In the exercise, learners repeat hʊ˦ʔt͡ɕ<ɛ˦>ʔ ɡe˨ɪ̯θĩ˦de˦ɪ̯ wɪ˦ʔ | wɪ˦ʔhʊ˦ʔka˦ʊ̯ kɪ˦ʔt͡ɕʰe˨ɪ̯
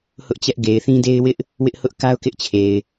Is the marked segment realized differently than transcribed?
no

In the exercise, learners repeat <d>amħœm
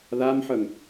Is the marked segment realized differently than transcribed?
yes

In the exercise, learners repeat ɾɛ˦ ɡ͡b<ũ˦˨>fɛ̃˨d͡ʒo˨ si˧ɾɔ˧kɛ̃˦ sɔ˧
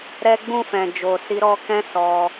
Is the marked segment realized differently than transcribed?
no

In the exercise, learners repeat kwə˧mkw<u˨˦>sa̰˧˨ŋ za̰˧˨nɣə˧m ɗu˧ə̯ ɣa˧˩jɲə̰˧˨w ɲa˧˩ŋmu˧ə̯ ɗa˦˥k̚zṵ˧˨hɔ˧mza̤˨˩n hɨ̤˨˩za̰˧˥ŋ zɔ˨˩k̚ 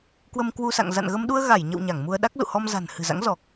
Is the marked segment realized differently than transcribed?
yes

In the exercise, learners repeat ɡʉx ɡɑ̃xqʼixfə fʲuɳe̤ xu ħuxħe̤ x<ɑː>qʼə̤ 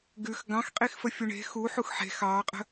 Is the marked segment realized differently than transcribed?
no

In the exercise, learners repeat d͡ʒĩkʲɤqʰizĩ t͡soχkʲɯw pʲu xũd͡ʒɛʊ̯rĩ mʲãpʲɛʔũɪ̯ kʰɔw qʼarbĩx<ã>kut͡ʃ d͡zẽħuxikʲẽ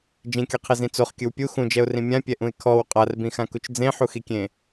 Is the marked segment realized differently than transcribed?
no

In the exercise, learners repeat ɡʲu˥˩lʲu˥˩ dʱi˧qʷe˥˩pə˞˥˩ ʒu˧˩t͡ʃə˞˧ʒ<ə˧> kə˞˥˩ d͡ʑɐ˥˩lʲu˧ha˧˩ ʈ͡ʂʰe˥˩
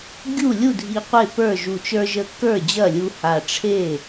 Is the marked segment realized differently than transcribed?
no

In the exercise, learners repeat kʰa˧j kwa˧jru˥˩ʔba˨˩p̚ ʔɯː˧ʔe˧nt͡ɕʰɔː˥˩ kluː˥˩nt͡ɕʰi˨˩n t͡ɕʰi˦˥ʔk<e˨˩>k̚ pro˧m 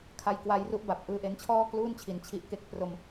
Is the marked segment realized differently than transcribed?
yes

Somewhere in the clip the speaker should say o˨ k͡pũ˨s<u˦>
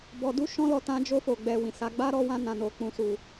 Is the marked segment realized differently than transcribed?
yes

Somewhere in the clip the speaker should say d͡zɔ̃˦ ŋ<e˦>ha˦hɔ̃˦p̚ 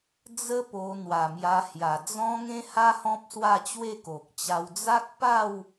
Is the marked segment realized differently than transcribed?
yes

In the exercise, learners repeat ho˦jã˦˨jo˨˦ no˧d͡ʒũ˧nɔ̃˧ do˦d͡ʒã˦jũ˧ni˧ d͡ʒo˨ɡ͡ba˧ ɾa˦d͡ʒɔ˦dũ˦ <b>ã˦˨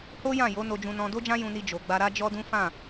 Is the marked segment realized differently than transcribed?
yes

